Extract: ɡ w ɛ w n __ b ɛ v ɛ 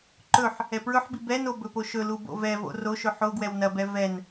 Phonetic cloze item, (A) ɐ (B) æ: A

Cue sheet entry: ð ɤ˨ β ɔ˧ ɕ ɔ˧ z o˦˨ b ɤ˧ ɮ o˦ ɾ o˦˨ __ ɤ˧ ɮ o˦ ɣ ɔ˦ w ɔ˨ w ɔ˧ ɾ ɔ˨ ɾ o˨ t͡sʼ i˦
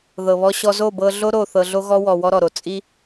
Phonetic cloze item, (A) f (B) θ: B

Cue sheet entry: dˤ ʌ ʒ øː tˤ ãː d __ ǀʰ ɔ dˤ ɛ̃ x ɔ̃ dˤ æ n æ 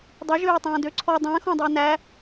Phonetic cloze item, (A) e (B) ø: B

